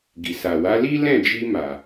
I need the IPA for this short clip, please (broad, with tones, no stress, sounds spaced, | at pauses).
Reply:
ɡ i˨ s a˨ w a˨˦ l i˦ l ɛ̃˦˨ d͡ʒ i˧ m a˨